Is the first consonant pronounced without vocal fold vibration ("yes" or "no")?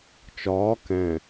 yes